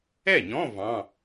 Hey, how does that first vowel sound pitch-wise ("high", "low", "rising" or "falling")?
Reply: falling